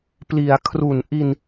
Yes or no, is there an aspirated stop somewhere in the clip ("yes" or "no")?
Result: yes